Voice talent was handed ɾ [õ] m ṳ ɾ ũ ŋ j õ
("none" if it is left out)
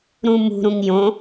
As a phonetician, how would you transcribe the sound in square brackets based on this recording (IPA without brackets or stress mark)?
ũ